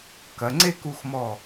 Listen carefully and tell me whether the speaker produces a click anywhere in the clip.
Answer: yes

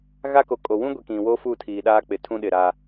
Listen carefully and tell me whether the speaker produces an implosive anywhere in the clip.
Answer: yes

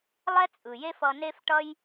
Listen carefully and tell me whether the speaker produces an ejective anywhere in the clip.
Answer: yes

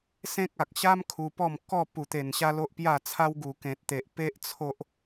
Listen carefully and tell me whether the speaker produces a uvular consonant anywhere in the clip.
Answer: no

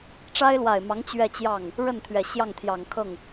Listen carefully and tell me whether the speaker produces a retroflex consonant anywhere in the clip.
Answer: yes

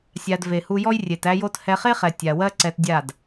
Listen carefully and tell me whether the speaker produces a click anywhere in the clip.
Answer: yes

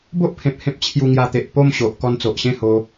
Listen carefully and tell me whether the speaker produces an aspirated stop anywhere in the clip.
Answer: yes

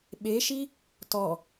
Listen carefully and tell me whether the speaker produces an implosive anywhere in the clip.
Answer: yes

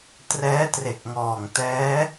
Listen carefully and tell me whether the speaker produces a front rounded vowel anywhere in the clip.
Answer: no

